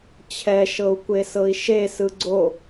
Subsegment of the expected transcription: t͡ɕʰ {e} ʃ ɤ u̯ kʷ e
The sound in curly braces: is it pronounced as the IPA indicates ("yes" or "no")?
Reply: no